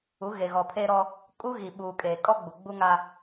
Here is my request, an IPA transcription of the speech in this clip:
u˨˦ ɣ e˨ ɣ ɔ˨ pʰ eː˦ ɾ ɔ˦ | kʼ u˦ ɣ i˨ ɓ uː˨ kʼ eː˨ kʼ ɔ˦ ɡ͡b u˨ ɡ͡b u˦ ŋ a˦

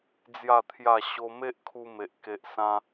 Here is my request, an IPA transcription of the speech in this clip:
d͡z j a˥˧ t̪ʰ j a˥˧ ɕ o˦ m e˦ ʔ kʰ u˧ m e˨ ʔ k e˦ ʔ s ã˦

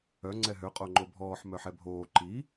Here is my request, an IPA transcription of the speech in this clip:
œ ŋ͡ǀ ɛ ɦ ø qʼ o ŋ͡ǃ o bʱ ɔː ħ m œ ħ ɛ bʱ oː ǃ i

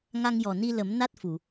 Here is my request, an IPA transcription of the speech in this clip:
ŋ a˧ ŋ j ɔ˨˩ n i˧ l ə˨˩˦ m n a˦˥ t̚ f u˨˩˨

